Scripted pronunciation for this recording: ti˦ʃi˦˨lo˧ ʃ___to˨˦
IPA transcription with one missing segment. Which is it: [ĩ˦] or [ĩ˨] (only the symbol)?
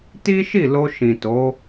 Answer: ĩ˨